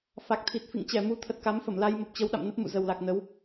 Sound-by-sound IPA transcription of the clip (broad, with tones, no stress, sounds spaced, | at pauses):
f a˨˩ k̚ t̪ʰ i˨˩ t̚ f ḭ˧˨ ŋ t͡ɕ ɛ˧˩ m u˨˦ t̪ʰ ə˨˩ t̚ k a˨˦ m f ə˧˩ m l a˧ j m ə˨˩ p̚ t͡ɕ ə˨˦ w ɗ a̰˧˨ m n ə˦˥ p̚ m ṵ˧˨ z ə˨˩ w l a˨˩ k̚ n ə˨˦ w